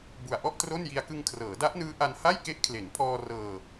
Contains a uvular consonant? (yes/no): no